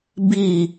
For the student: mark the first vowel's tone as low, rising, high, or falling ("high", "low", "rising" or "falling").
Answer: falling